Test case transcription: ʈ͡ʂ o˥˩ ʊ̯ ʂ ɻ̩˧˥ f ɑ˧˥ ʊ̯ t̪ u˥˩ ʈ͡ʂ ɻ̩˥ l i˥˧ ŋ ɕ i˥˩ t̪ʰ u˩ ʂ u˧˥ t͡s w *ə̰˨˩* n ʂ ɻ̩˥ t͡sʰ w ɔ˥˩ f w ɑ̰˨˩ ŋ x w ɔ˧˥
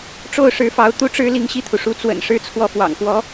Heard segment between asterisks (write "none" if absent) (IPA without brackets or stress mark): ə̰˨˩